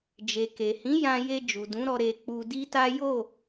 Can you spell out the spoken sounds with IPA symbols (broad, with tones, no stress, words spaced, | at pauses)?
d͡ʒe˨ke˨hĩ˨˦ jã˧je˧ d͡ʒu˨dũ˨˦ɾɔ˧ ɾe˧k͡pu˧di˦ta˦ jo˦˨